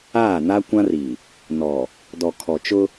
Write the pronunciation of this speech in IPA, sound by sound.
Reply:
aː˦˨ na˦kʷã˦ri˨ | nɔ˨ | dɔ˨kʰɔ˨t͡ʃʊ˦

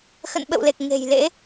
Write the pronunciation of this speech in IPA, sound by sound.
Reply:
xə̰˧˨nɓə̰˧˨wle˨˩k̚ ŋe̤˨˩jlḛ˧˥

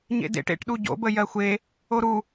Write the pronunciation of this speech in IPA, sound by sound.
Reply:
ɲḛdḛʈ ḛʈɗu ɟo̰bə jɜxʷe | oɾu

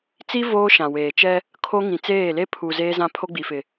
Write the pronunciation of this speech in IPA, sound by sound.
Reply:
t͡si˦ voː˦ʃã˨weː˨t͡ʃɛ˦ | kʰo˦ŋĩ˨t͡seː˦˨ le˦pʰu˨ zeː˦zã˦ pʰo˦ɡ͡bi˨fɪ˨

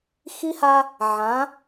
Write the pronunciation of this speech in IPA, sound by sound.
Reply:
xi˦ha˦ | ʕã˨˦

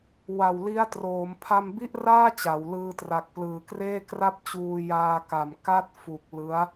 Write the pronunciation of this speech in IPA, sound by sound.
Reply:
wa˨˩wli˦˥a̯troː˩˦m pʰa˧mbi˥˩ʔraː˥˩ t͡ɕa˩˦w lɯː˧tra˨˩k̚plɯː˨˩kreː˥˩ kra˥˩p̚t͡ɕuː˧ jaː˧ka˨˩m ka˥˩t̚fu˨˩k̚ lɯ˦˥a̯

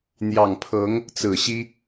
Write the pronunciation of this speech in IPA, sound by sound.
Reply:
n̪jɑ˨˩ŋpʰɤ˧˥ŋ | t͡sɹ̩˨˩ɕi˥

